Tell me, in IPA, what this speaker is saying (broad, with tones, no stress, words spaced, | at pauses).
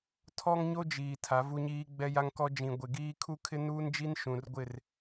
tʰɔ˦ŋɲo˦ d͡ʒiː˨ tʰa˨˦vu˦ɲiː˦ ɡ͡bɛ˦ja˦ŋkɔ˦ d͡ʒĩ˨ ɡʷɪ˨ɡiː˦ kʰu˦kʰɪ˦nuː˦nd͡ʒi˦n ʃũ˨rɡʷɪ˦˨r